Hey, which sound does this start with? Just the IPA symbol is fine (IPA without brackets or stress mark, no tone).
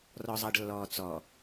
r